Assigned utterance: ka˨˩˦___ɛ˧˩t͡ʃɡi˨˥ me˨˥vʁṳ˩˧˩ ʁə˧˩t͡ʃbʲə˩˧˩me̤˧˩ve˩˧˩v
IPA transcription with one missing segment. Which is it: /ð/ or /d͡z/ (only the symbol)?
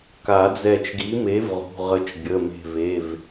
d͡z